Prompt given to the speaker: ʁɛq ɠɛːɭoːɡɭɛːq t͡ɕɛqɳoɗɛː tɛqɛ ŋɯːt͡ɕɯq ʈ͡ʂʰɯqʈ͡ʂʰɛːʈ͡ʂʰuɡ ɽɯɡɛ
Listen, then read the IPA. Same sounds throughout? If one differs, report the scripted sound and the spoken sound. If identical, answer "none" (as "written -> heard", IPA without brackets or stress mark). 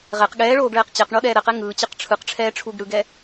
t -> ɾ